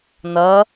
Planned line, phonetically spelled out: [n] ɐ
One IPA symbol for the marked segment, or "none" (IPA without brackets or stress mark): n